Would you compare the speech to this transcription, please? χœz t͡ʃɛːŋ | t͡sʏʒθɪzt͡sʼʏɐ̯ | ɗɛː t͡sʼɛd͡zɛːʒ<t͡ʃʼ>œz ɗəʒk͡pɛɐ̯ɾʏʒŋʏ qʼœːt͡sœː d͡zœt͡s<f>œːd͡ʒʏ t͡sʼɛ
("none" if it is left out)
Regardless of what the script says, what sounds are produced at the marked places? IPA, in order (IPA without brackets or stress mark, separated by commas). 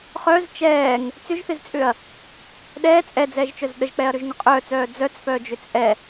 t͡ʃ, f